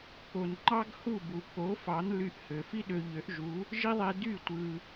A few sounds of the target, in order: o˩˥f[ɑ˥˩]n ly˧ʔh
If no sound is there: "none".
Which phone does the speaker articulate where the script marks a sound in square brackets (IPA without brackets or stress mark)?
ɑ˩˥